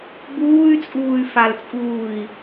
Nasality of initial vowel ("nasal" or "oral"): oral